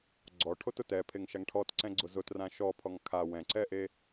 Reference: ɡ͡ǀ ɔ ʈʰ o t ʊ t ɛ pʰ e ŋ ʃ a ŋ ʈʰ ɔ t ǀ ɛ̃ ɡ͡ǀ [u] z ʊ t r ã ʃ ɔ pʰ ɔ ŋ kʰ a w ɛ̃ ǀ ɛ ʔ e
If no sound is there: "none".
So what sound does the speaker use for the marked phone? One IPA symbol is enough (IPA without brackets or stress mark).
ʊ